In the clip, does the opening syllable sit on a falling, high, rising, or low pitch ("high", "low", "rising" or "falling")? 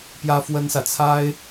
high